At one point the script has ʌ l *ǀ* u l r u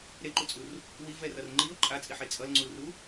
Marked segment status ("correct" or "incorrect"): incorrect